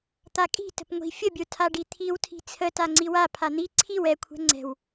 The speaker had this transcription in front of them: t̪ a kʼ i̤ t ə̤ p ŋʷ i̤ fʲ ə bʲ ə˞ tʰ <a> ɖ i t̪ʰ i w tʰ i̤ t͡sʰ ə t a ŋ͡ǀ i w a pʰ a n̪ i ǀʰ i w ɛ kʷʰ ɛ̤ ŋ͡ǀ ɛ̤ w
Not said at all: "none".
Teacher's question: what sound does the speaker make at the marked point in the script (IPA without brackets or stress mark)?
a